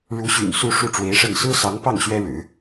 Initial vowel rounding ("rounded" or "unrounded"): rounded